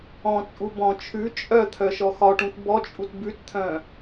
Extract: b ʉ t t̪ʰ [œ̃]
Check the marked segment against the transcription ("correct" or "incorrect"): correct